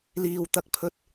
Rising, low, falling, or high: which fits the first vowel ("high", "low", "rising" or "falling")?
low